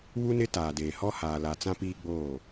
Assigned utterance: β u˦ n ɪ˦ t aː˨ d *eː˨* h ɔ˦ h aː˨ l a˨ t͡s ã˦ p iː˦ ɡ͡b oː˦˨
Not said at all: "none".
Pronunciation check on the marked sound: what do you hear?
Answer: eː˨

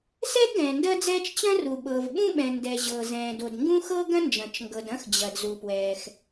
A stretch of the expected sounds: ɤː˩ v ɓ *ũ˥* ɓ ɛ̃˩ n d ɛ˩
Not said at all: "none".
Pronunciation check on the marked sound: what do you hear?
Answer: ũ˥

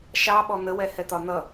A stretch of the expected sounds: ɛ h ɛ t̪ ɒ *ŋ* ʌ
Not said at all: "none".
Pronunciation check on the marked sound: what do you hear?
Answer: n̪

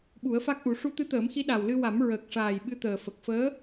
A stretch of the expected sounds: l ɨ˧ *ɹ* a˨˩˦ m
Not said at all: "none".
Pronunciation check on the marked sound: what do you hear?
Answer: w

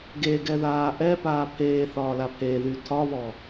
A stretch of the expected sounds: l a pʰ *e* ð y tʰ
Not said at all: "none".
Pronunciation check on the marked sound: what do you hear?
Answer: e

